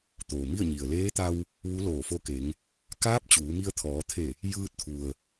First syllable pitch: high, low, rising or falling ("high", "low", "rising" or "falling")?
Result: low